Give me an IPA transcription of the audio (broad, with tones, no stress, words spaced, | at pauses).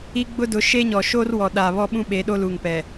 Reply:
i˦ɡ͡bʊ˦ dʊ˨˦ʃe˦ɲɔ˨ ʃoː˦rwɔ˨ɗaː˨ βɔ˦ɓũ˦ ɓe˨˦ɗo˦ luː˨ŋpɛ˨